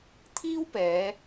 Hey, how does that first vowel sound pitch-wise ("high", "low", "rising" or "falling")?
high